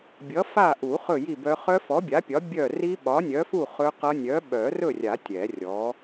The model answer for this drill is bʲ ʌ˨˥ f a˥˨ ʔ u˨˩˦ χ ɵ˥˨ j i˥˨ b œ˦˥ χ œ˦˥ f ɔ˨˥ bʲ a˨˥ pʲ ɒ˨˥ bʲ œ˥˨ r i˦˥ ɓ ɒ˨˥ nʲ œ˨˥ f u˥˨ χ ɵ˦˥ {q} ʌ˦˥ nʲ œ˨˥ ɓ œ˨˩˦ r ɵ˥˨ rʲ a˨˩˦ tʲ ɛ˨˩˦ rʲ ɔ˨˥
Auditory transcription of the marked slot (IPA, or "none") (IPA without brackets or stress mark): q